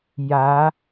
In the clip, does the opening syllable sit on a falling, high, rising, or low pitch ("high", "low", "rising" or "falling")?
rising